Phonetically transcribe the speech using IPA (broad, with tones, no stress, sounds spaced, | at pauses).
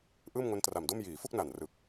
ʔ ɯː˥˩ m ŋ o˦˥ n t r a˨˩ m d o˥˩ m j iː˩˦ f u˥˩ k̚ n a˨˩ n r ɯ˨˩ k̚